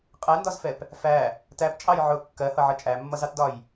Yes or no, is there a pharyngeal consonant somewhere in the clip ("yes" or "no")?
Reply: yes